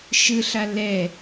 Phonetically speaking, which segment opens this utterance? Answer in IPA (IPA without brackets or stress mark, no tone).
ʃ